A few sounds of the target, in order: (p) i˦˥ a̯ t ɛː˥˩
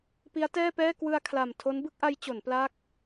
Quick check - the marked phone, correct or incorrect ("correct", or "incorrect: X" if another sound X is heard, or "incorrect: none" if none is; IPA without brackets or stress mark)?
correct